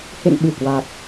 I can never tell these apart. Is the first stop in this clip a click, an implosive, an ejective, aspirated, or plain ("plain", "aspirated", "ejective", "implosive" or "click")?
implosive